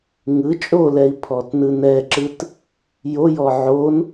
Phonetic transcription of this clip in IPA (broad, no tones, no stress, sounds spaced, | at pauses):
ŋ ɯ t͡ʃʼ o l ɛ i̯ pʰ ɔ t n ɯ n ɛ ǁ ɯ t | j o j ɔ ʕ o n